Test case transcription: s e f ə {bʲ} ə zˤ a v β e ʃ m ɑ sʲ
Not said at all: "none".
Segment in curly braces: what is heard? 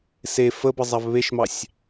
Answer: b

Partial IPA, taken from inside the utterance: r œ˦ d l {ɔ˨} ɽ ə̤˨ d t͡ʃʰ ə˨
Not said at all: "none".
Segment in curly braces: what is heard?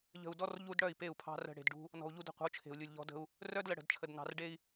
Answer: ə˨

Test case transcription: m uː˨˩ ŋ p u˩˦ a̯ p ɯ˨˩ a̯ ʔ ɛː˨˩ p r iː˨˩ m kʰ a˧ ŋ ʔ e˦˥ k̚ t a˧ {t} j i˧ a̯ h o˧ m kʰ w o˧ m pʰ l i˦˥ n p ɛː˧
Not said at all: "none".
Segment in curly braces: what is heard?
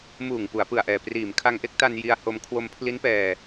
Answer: n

